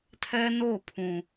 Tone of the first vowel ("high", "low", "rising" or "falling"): high